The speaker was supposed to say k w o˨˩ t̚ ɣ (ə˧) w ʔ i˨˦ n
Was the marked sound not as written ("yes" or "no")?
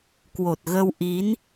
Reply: no